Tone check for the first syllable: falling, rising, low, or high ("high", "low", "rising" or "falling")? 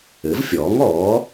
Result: rising